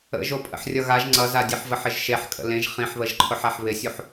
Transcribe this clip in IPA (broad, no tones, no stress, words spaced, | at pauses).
ə̰ʒopʼə̰ħ rʲʌɣaʒ ŋ͡ǀʌzadʲeħvəħ ɪʒʃeħ kʼə̰lẽʒ χĩħβəʒǃʰʊħaħ βɪsʲuħ